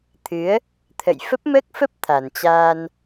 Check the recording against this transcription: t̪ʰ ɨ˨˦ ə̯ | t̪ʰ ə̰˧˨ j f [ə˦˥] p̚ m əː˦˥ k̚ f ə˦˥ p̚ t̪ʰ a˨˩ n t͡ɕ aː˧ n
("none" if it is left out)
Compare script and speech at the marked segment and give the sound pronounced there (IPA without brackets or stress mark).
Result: ə˦˥